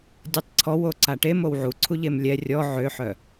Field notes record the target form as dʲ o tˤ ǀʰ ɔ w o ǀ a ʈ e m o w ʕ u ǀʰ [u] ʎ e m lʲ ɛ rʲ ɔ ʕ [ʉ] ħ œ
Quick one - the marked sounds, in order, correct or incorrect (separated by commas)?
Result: correct, incorrect